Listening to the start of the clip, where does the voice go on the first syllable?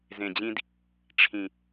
low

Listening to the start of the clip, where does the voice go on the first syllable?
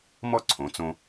high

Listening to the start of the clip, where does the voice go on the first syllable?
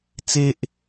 high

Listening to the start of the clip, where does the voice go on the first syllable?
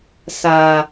low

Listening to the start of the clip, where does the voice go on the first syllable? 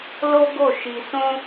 high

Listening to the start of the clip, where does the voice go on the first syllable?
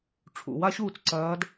low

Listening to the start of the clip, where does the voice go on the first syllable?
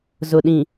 low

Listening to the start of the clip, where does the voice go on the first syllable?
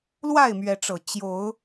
falling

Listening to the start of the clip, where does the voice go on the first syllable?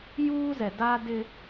high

